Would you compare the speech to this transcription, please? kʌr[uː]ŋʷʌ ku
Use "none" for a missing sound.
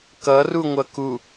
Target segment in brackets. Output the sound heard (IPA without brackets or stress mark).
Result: u